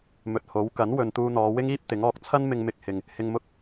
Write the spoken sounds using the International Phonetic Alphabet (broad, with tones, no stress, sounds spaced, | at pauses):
m ɵ˨ t̚ h o˨˥ w k ɐ˨˥ n w ɵ˨ n t̪ uː˧ n̪ ɔː˨˧ w ɪ˥ ŋ iː˥ p̚ t̪ ɪ˨˥ ŋ ɔː˧ k̚ t͡sʰ ɐ˥ n m ɪ˧ ŋ m ɪ˧ k̚ h ɪ˨ ŋ | h ɪ˧ ŋ m ʊ˥ k̚